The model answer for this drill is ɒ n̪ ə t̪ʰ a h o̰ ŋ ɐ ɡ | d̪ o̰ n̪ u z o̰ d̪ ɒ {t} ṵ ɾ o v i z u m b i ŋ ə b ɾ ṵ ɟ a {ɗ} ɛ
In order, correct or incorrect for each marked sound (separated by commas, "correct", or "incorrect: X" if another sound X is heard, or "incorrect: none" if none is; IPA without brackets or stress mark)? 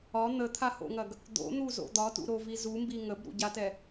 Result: correct, incorrect: t